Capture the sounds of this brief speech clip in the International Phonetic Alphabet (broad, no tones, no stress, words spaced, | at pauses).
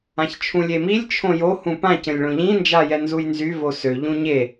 ãçt͡ʃʰũlʲemilʲ t͡ʃʰõjo hũpã cə̃lʲɭõʎĩ nd͡ʒajɛnzujnzy vosø ʎũɲe